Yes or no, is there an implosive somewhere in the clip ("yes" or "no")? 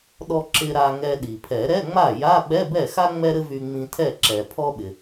yes